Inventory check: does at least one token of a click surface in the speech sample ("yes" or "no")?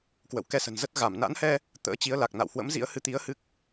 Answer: no